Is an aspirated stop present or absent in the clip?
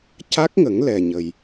absent